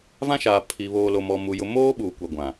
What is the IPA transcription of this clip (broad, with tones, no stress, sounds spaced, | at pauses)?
v ã˦ ʃ aː˨ pʰ i˨ β oː˨ l o˨ m ɔ˨ m u˨ j ʊ˨ m oː˦ ɓ uː˨ kʷ a˨ ɡʷ ã˨